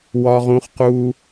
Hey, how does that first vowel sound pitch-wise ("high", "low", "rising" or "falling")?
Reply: high